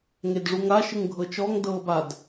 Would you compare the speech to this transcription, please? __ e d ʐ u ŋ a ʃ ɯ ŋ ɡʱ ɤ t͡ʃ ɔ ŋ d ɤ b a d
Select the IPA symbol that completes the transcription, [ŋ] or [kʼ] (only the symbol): ŋ